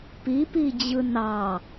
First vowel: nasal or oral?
oral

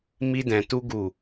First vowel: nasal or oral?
oral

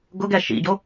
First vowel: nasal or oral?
oral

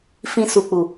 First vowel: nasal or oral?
nasal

